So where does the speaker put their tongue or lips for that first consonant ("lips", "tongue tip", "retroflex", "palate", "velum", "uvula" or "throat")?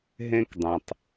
throat